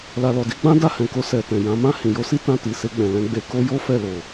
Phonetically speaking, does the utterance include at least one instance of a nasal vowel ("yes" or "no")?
yes